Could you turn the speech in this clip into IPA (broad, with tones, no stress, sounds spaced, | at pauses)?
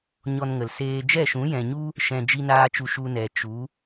ɲ ɔ˧ n ŋ ə˨ l s eː˧ d͡ʒ ɛ˦˨ ʃ ũ˨˦ j ɛ̃˨ ɲ u˦ | ʃ ɛ̃˧ d͡ʒ i˦ n aː˦ t͡ʃ u˧ ʃ u˧ n ɛ˨ t͡ʃ u˨˦